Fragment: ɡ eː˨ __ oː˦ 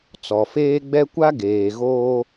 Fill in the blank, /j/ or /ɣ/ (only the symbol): ɣ